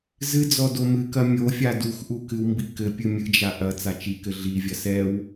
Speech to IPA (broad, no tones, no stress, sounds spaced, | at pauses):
z ɨ d͡z ɔ d o m ɨ k ɐ mʲ o fʲ a d u x ʔ u k ɨ w m b i k ɘ pʲ ɨ mʲ ɨ d͡ʒ a ʔ ɐ t͡s a t͡ʃ i k ɘ ɮ i vʲ ɐ s ɛ w